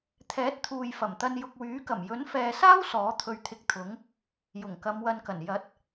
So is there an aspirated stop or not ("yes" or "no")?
yes